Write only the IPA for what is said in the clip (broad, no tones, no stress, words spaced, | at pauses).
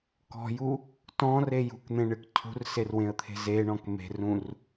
kɔ̤ju | tɔ̃re jṳkn̪ẽɳɨk cʰṳrserwẽə̯t̪ʰe̤ zeɳɔ̃k me̤rũr